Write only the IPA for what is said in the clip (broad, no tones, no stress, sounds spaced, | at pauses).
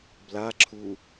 b l a ǁʰ u